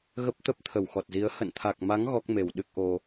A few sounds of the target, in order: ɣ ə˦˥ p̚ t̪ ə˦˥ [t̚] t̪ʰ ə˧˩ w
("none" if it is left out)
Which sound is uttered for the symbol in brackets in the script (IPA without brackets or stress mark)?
p̚